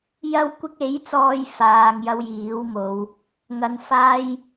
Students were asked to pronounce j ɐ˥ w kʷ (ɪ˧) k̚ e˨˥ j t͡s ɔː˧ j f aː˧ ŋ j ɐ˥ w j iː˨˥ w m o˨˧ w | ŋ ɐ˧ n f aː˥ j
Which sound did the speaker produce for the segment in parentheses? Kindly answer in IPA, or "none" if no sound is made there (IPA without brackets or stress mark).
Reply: ɪ˥